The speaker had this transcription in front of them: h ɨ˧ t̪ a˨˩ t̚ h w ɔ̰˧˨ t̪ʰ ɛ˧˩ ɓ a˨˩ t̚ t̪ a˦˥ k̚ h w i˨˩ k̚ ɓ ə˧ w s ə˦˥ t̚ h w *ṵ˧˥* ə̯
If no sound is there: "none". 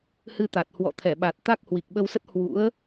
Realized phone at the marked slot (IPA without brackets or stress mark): ṵ˧˥